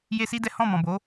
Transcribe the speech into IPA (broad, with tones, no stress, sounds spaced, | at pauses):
j e˦ s i˦ d ɛ˦ h ɔ̃˦˨ m ɔ̃˨ b o˨˦